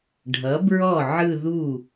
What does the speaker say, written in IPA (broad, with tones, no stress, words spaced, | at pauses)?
ɖʱʌ˩˥bɹɔ˥˩ ʕɯ˥˧ðu˥˩